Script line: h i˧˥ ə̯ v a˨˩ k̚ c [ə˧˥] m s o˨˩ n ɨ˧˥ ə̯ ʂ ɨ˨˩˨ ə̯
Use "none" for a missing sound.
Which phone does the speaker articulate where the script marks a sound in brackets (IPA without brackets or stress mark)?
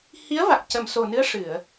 ə˨˩˨